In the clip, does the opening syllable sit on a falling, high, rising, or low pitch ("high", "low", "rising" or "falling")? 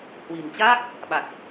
low